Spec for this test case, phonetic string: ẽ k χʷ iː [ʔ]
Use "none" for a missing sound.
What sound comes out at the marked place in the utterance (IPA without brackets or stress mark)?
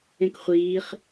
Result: χ